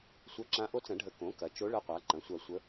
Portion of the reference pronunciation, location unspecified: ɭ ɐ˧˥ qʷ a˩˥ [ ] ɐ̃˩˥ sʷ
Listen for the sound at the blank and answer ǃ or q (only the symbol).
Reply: ǃ